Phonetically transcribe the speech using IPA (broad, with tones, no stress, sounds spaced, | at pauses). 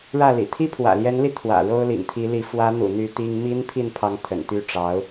ɻ ä˥˩ l ḭ˨˩ t̪ʰ i˥ pʰ w ä̰˨˩ l j ɛ˧˥ n l i˧ t̪ʰ w ä̰˨˩ ɻ o˥ ʊ̯ l ḭ˨˩ ŋ t̪ʰ i˧˥ l i˧˥ f w ä˧˥ n̪ ṵ˨˩ n̪ y˧˥ t̪ i˥ ŋ m i˥ n pʰ i˥˩ n pʰ ɑ˧˥ ŋ t̪ʰ ə̰˨˩ n t̪ y˥ ʈ͡ʂ ɑ˧˥ ʊ̯